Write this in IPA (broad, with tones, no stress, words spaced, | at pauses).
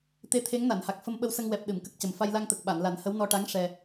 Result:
t̪e˧˥t̪ʰe˧˥ŋna˨˩˨nha˨˩k̚ fə˧mɓə˧wsə˧ŋwɛ˨˩p̚ ɗɨ˨˩˨mkə˦˥k̚cə˨˩m fa˧jla˧ŋt̪ə˨˩k̚ ɓa˨˩˨nla˨˩˦nhə˧˥w nɔ˧ʈa˧˥ŋ ʂɛ˧